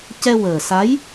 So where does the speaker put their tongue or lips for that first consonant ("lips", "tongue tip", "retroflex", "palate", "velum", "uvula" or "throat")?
palate